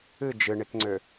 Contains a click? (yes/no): yes